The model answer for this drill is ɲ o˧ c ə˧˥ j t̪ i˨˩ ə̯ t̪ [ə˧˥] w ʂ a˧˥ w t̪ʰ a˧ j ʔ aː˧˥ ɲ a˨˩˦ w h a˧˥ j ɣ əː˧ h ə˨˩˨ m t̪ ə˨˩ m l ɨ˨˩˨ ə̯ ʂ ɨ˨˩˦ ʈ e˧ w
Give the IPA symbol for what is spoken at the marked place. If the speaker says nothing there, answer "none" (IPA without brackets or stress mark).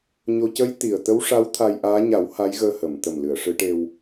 ə˧˥